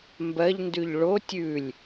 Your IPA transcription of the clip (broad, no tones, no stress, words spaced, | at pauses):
mbɜʎndʉʎ ɭo tʲʉlʲ